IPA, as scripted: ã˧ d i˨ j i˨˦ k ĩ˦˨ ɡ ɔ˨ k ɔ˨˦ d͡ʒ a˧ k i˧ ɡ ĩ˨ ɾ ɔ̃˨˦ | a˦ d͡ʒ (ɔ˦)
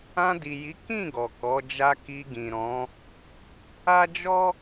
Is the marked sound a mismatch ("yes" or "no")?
no